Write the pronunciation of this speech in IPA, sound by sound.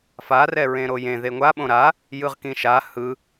f a r ɛ ɹ ẽ ɾ o j ẽ ð e ŋʷ a ɓ õ ɾ a | j ɯ ʁ k ĩ ʃ a h ɯ

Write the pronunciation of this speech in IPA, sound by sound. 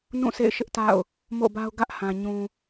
n ũ˦˨ s ḛ˦˨ ɪ̯ ʃ ɪ˦ ʔ t a̰˦˨ ʊ̯ | m o̰˦˨ b a˦ ʊ̯ ɡ ä˦ ʔ h ã˨ ɲ ũ˨

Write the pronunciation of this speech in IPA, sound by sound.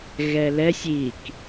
ɣ ɛ l ɛ sʲ i k

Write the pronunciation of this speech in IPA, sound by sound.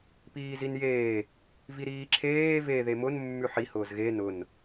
p iː z i n j eː | v i ɾ iː ǁʰ eː v e ð e m ʊ n mː ʉ ħ i h ʊː z ɣ e n ʊ n

